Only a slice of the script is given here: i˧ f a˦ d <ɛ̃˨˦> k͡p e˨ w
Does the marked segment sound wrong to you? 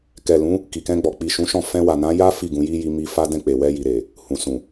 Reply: yes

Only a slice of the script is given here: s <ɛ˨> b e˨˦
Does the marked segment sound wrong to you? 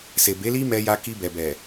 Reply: yes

